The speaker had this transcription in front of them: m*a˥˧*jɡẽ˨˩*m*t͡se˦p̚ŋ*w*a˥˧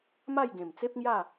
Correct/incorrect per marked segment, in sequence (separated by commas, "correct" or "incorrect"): correct, correct, incorrect